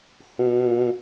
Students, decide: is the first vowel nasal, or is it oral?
nasal